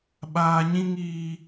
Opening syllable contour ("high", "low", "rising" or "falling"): high